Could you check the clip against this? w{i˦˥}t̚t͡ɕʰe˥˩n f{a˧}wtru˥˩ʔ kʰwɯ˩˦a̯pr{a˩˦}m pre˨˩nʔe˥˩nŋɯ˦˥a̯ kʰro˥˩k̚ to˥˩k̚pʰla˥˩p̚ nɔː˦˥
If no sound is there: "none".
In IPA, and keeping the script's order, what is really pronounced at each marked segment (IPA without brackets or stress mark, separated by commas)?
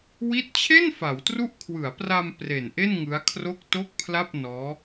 i˦˥, a˩˦, a˧